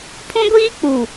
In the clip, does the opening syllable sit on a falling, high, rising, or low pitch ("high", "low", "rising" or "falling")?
high